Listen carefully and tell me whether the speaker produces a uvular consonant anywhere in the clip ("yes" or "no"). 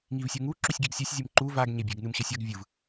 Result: no